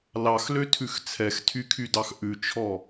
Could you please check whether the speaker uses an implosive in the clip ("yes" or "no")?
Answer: no